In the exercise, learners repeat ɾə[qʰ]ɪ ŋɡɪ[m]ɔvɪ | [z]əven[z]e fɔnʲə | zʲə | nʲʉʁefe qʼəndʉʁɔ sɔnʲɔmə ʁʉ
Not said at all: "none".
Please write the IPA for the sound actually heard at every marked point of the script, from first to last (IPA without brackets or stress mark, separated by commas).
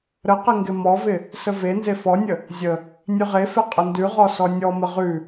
q, m, s, z